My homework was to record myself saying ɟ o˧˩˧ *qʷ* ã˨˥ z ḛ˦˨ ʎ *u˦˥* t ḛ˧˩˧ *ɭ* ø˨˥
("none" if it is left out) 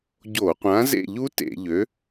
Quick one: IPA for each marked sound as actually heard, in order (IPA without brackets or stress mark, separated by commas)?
qʷ, u˦˥, ʎ